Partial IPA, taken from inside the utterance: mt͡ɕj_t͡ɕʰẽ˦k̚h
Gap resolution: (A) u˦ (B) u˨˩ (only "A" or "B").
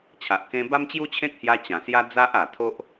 A